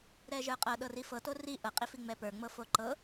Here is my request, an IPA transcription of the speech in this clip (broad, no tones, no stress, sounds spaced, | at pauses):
ɾ ɛ ʒ ə˞ qʼ ɤ ɗ ɤ r i f ɤ t o r i ʔ ɤ qʼ i f i ŋ͡m ɛ p ə˞ ŋ͡m ɤ f o ǃ ɤ